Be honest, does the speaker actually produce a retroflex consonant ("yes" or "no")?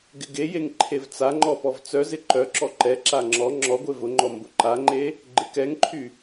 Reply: no